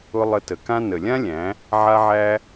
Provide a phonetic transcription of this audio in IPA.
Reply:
ʊ˧ lˠə˧tə˨kã˦ nə˨lʲã˦lʲæ̃˨˦ | ʕa˦ʕæ˦

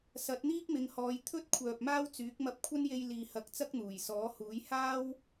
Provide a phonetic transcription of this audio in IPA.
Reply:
sɐ˨˥t̚n̪iː˥k̚mɪ˨˧ŋhɔː˨˧j t̪ʰɵ˥t̚ kʷʰœː˨p̚maː˥wt͡syː˨˥k̚ mɐ˧p̚kʷʰɐ˥nje˧j liː˨hɐ˨˥k̚t͡sɐ˥k̚ n̪uː˨˩jsɔː˨˥huː˨˥j haː˥w

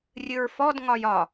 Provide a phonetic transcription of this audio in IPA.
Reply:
rʲɨɹfɔd ŋɒjɒ

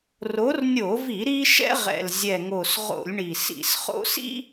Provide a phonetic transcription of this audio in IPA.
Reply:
ro˨˦rnʲo˧˩˧vi˧˩˧ ɾi˦ ʃɛ̰˦ʁɛ̰˨˩lzʲɛ˨˩ŋo˨˩s ʁo̰˧˩˧lʲɳi˨˩ sḭ˧˩˧sχo̰˦ sḭ˦

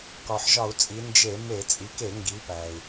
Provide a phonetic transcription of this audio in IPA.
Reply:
kɒ˩ħʒɒ˧˩˧u̯t͡sʼi˩˧ nd͡ʒe˧˩˧me˧˩˧ t͡sʼi˩˧ke˧˩˧ ŋɡi˩˧pæ˩i̯

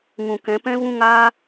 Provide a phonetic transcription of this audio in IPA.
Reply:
ŋũ˨kɛ̃˨˦ pɛ̃˦ vũ˦ŋaː˦

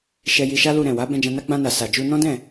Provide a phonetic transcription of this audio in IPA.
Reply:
ʃɛ˧ji˧ʃa˦lu˧ ɾɛ̃˨wa˨˦ bɛ̃˧d͡ʒã˧na˦ ɡ͡bã˧na˨sa˨d͡ʒu˧ nɔ̃˦dɛ̃˦˨

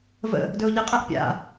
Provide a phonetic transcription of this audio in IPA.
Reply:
və̰ | dɵʊ̯ʎɪqʼɛʔ pʲa̰

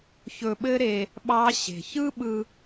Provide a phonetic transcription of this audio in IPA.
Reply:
çɵ˧ɓɘ˦ɾe˧ | ɓɑ˦ ɕe̤˧ çɯ˦ɓɯ˧

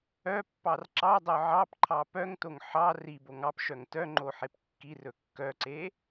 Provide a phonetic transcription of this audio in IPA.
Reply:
œpːɑr ǁɑdˤœ ʕɑpǃʰɑ pœŋtoŋ ħɑ riboŋ ɑpʃœŋ tœŋ͡ǃoħep kːirɵ kːœǀe

